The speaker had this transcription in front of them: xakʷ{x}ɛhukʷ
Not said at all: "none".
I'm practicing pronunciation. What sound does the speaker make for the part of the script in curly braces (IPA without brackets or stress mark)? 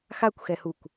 x